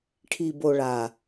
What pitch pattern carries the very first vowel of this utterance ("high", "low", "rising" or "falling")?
low